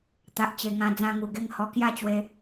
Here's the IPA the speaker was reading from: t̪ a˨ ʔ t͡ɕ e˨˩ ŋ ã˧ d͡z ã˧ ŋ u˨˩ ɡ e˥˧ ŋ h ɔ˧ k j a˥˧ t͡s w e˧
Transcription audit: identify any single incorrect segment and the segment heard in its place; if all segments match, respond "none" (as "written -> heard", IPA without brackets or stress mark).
t͡s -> t͡ɕ